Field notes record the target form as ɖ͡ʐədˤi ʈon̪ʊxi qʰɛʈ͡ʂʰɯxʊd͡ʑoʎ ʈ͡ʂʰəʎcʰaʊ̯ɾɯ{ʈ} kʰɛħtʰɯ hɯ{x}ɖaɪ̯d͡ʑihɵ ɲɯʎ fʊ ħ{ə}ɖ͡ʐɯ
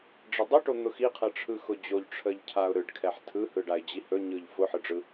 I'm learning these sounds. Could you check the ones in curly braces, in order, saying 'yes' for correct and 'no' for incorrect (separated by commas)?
no, no, no